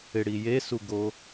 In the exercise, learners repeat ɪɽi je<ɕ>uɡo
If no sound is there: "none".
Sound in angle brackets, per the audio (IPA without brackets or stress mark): s